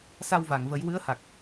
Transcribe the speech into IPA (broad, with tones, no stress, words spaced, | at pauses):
sa˧wva˨˩˨ŋvə˨˩˦j wɨ˧˥ə̯ha˨˩k̚